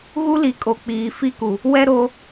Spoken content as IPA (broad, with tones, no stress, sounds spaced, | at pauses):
ɣ u˦ l i˨ kʼ o˨ k͡p iː˨ f i˦ k u˨ | w ɛ˦ ɾ o˦